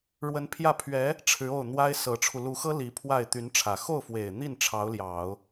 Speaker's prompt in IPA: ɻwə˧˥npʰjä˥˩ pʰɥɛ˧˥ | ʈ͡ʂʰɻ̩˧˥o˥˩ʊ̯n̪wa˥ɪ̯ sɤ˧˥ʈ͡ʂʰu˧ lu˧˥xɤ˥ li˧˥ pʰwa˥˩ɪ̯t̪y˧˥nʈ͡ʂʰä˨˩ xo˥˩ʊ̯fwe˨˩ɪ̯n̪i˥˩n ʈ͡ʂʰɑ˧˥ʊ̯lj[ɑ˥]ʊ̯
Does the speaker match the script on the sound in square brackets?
no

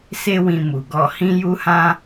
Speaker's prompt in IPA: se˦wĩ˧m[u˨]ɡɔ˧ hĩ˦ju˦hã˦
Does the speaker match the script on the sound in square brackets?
yes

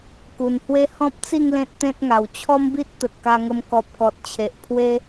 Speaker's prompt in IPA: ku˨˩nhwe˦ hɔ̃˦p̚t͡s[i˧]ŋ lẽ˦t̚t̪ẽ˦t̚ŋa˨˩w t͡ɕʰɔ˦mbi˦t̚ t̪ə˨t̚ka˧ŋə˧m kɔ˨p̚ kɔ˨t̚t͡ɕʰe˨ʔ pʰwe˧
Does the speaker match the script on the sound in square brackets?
no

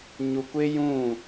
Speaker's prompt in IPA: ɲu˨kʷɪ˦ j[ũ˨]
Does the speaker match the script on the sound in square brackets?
no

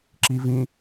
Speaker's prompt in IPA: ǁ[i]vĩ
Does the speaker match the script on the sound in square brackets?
yes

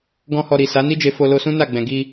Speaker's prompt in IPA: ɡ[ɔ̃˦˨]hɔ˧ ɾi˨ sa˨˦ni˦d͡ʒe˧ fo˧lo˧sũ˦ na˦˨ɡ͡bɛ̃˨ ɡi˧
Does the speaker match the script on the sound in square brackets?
no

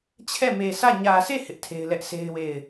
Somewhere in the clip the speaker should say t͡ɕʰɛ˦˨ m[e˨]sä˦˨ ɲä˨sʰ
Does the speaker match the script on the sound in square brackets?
yes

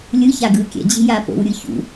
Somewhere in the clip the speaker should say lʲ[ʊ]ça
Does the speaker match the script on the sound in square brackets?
no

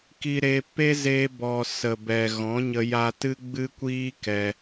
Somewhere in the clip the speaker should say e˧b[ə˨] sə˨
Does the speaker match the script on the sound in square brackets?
no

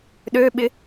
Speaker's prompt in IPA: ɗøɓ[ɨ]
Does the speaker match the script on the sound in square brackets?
no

